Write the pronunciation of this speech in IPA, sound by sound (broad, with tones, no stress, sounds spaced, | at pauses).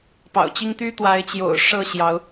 p ɑ̰˨˩ ʊ̯ t͡ɕ i˦ ŋ t̪ y˦ t̪ w a˨˦ ɪ̯ t͡ɕ j o̰˨˩ ʊ̯ ʂ ɤ˥˨ ɕ j ɑ˨˦ ʊ̯